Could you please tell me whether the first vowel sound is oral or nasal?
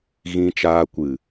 nasal